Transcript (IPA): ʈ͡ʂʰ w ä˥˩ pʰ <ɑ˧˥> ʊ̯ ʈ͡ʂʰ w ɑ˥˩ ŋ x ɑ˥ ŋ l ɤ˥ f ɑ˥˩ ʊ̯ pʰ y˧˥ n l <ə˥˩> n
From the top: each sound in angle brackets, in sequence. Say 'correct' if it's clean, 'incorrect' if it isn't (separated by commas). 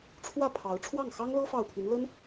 correct, incorrect